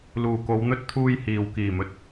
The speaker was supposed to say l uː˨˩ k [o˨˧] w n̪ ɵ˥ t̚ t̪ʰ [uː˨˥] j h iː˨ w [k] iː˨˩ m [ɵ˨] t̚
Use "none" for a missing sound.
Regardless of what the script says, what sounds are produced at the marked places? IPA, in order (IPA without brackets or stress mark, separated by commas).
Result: o˨˧, uː˥, k, ɵ˨